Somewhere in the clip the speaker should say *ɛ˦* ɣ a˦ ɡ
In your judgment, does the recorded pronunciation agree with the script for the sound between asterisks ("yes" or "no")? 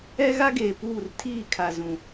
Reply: yes